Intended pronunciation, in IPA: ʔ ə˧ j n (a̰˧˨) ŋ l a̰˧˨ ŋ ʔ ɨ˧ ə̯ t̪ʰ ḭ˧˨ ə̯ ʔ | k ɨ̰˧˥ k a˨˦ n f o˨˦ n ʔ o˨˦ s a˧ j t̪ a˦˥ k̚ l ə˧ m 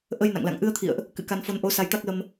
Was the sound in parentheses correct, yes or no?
yes